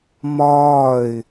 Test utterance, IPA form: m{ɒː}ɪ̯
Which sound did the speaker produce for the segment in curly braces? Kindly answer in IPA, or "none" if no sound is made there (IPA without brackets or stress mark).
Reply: ɒː